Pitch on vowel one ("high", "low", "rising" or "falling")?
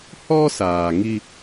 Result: high